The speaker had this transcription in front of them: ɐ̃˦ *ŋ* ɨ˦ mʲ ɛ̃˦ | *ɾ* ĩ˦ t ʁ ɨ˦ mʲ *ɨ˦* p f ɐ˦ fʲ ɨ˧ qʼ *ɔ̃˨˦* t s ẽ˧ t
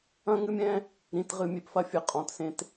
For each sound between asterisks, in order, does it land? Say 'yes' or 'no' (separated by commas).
yes, yes, no, yes